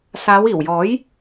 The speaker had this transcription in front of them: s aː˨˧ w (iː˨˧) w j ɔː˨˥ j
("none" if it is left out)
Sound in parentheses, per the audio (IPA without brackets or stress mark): iː˨˩